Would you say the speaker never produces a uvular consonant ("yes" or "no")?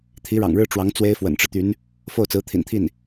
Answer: yes